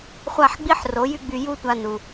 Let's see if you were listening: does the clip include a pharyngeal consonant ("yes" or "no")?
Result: yes